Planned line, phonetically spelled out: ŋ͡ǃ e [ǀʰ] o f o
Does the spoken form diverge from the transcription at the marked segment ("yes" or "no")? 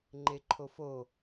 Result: yes